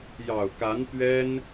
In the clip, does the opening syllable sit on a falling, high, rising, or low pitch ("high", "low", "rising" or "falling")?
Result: low